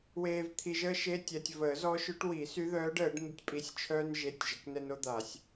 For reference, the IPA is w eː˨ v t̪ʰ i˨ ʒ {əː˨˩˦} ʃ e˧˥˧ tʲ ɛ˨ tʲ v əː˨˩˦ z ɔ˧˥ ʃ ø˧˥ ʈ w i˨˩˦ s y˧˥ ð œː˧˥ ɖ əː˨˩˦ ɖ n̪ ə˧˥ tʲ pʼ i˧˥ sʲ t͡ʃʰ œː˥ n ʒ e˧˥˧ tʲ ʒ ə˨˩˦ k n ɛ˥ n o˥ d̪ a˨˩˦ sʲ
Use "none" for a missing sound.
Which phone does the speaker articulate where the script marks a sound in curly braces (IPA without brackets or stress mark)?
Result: əː˥